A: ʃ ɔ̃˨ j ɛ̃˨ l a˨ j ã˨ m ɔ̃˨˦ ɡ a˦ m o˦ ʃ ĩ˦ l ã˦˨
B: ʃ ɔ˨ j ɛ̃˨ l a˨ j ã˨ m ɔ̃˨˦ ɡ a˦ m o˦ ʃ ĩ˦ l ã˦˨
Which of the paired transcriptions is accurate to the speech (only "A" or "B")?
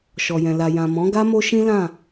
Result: B